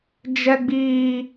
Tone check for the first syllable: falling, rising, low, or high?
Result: high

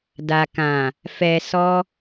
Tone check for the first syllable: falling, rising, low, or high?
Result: low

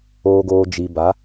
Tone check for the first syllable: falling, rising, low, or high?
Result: low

